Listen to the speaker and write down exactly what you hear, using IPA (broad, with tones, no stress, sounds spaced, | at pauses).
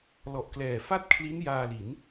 l ɔ˨˩ ʔ k l ɛː˨˩ f a˥˩ t̚ kʰ l i˦˥ n j aː˧ l i˩˦ n